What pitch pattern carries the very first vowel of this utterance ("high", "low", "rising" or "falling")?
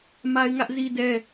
high